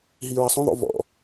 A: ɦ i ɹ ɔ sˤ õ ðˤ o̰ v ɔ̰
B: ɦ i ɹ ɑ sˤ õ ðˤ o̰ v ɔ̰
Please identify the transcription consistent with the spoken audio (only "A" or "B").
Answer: B